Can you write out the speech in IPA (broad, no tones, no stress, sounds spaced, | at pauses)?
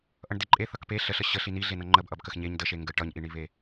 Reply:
ʔ ʌ ɳ d e ǃʼ e θ ʌ k p e ɬ ə ɬ ə ɕ ə ɬ i n i ɮ e n ʌ ŋ͡ǃ ə b ʔ ʌ b k ə x ɲ e ɲ d ə ʃ e ŋ ɡ ə ʈ ʌ ɲ ʔ i ɳ i β e